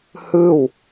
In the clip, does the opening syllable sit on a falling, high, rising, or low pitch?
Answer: falling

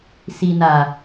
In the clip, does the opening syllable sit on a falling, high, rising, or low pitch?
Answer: low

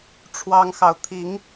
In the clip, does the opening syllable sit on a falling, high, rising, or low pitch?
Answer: high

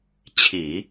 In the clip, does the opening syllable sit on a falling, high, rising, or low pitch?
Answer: low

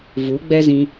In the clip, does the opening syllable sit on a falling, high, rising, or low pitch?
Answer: rising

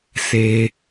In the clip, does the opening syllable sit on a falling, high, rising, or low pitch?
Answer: high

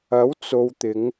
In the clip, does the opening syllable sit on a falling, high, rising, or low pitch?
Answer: rising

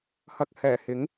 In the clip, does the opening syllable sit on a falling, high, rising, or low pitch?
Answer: low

